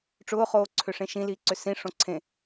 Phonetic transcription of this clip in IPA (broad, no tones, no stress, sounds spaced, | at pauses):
ʈ͡ʂ ʊː χ oː ǀʰ ʏ ʂ ẽ ʃ ĩ l i ǀ ʏ s ĩ ʂ õ ǀʰ ẽ